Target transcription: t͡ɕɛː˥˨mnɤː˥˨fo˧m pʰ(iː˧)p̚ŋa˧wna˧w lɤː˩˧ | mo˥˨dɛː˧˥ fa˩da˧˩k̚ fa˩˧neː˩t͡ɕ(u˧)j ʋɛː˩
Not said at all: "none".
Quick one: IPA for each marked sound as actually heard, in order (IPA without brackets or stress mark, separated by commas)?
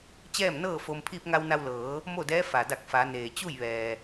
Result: iː˧, u˥˨